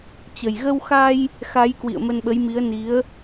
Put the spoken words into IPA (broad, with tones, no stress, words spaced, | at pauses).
t͡ɕə˨˩jɣə˧wxa˧j | xa˨˦jkwḭ˧˨ə̯ mə˧nɓə˨˦jmi˨˦ə̯ ni˨˦ə̯